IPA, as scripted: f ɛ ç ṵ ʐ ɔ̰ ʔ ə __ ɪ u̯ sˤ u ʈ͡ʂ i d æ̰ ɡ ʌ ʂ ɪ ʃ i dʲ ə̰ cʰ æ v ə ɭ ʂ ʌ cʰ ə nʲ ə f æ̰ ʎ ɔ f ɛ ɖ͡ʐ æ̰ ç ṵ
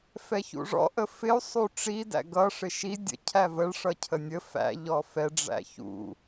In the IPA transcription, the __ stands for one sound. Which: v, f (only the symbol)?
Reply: f